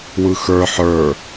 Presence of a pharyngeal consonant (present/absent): present